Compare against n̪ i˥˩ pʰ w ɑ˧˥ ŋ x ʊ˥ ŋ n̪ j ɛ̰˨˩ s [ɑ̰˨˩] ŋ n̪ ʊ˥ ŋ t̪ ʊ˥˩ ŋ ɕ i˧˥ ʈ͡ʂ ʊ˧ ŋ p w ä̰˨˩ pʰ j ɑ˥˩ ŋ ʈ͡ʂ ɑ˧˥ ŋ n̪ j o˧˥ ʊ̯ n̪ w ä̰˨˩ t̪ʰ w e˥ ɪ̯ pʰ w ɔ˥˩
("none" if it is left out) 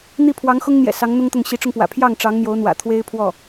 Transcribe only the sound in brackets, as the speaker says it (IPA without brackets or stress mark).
ɑ˧˥